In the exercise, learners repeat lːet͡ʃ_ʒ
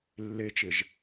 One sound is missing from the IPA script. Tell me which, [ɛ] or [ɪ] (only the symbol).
ɪ